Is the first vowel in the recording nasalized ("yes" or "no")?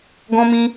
yes